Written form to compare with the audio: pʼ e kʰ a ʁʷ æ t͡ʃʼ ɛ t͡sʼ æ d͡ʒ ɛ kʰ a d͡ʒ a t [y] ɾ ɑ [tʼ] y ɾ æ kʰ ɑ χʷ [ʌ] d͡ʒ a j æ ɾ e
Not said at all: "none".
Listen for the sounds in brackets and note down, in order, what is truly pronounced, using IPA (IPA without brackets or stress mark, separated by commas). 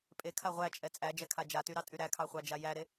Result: y, tʼ, ɑ